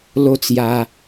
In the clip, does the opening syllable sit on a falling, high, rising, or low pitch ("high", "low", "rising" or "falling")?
high